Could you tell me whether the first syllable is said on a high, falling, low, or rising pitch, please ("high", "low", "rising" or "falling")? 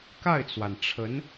falling